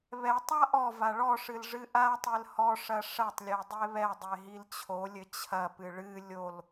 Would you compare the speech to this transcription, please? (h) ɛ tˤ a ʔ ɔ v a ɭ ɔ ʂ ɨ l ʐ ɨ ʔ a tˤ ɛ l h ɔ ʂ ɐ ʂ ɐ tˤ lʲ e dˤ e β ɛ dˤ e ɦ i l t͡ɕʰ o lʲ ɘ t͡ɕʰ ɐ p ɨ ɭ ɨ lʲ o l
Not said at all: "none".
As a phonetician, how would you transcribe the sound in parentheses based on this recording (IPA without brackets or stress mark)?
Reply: β